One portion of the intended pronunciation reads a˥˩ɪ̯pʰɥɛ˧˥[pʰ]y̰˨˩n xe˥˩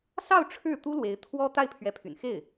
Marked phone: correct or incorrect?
correct